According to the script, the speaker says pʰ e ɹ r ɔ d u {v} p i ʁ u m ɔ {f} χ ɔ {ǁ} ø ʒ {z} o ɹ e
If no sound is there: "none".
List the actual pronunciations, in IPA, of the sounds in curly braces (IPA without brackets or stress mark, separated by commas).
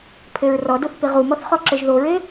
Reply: θ, θ, ǁ, ð